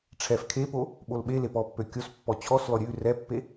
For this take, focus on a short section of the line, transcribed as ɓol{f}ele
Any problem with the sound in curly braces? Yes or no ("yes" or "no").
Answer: yes